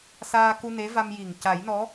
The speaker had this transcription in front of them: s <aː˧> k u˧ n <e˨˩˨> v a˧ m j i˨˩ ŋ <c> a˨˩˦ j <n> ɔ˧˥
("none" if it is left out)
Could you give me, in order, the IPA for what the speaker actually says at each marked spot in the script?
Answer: aː˧, e˧˥, c, n

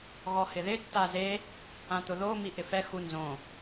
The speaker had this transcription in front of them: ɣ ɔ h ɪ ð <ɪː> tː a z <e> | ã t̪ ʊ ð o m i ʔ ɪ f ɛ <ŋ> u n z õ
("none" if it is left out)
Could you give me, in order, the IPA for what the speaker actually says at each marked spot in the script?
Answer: ɪ, e, x

